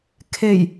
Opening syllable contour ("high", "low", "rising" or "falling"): low